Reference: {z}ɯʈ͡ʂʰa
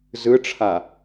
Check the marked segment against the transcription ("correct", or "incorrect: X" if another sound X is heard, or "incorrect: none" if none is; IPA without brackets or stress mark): correct